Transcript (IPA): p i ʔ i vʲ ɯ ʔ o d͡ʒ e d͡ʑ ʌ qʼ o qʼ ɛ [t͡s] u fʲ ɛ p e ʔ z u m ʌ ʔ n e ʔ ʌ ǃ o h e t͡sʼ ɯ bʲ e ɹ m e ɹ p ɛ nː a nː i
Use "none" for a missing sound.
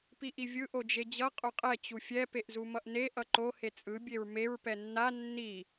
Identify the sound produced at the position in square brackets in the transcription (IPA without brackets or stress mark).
t͡ɕ